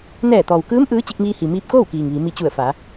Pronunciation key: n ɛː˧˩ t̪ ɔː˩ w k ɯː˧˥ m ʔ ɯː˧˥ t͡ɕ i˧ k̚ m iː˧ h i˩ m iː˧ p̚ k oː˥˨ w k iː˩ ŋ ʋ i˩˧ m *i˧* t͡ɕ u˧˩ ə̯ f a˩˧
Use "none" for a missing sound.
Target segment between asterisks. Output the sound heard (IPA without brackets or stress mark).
i˧